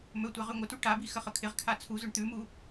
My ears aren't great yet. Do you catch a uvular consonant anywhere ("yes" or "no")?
yes